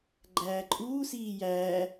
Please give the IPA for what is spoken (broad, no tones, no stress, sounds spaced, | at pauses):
ɡ͡ǃ æː ǃʼ uː s iː j æː